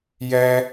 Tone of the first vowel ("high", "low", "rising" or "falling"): high